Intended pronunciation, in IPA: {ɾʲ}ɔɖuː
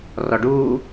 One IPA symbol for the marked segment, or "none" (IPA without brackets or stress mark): r